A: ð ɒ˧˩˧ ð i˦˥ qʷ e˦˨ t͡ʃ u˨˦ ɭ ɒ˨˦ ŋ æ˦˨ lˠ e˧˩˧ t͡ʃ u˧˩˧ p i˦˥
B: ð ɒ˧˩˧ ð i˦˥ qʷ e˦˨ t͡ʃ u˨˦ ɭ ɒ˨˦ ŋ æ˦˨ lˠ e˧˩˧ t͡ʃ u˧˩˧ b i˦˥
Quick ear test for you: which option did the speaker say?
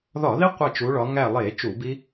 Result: B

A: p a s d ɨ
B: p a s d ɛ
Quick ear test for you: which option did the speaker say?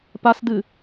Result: A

